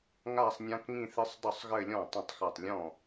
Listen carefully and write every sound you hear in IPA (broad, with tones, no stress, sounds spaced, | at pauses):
ŋ a˥˧ sˤ nʲ ã˦˥ k ŋ ĩ˥˧ θ ɨ˦˥ sˤ dˤ ʊ˥˧ sˤ ɣ ɘ˥˧ lʲ ɔ̃˥˩ tˤ ĩ˥˩ tˤ x a˥˩ tˤ lʲ ɔ̃˥˩